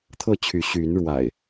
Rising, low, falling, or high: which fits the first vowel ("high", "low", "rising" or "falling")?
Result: falling